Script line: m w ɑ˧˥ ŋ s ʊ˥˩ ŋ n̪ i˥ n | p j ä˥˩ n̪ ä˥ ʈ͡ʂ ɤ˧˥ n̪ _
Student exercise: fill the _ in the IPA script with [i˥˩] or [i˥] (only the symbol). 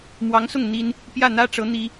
i˥